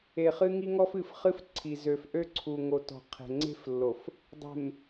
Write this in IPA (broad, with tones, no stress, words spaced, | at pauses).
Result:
e˨χɨ˦ŋi˦ŋɔ˦f ɨ˨fχɨ˦fǀʰi˨ zø˨fʔø˦ǀʰu˨ŋo˨ tɔ̤˨qʰe̤˨ŋ͡ǀe̤˦flːo˨f | dˤe̤˨m